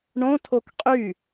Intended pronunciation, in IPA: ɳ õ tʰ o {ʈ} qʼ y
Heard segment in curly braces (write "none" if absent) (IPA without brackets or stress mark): k